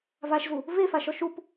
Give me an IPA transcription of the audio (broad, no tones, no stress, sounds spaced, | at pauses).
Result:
v a ʃ z u | v e f a ʃ ɔ ʃ u p